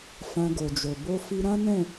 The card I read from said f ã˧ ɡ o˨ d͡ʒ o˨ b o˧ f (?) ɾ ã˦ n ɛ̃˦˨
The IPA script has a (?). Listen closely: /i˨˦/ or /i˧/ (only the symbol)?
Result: i˧